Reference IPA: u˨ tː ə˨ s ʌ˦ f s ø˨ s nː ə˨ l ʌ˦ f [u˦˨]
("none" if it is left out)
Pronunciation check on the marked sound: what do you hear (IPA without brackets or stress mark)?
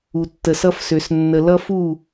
u˦˨